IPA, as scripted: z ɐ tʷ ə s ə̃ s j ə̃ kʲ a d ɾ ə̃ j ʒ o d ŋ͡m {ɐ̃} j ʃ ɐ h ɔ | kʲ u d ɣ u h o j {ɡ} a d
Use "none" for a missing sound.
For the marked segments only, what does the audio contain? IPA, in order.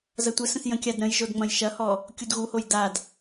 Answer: ɐ̃, d

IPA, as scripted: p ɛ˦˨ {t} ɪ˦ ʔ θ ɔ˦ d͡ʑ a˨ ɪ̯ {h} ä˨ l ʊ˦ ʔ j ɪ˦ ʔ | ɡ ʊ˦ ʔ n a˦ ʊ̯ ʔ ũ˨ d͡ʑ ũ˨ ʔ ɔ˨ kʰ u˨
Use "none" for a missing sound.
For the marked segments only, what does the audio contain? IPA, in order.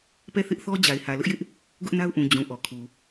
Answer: θ, h

